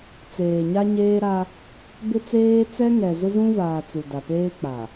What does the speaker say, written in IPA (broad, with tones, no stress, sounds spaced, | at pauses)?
t͡s eː˨ ɲ a˦ ɲ eː˦ ɾ a˦ | b ɪ˦ t͡s eː˦ t͡s ɛ˦ ŋ ɛ˨ z ʊ˦ z ũ˦ v aː˨ t͡s u˨ d a˨ p eː˦ k͡p a˨